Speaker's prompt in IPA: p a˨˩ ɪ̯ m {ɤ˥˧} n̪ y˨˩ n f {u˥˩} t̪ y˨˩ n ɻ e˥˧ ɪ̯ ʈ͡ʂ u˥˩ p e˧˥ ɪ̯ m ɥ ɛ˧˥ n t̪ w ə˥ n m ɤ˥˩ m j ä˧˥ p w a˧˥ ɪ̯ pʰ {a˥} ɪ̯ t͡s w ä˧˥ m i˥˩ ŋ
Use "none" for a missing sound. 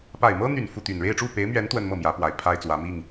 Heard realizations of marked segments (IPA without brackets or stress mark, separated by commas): ɤ˥, u˥˩, a˥